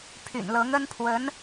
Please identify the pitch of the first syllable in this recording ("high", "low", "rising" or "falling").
low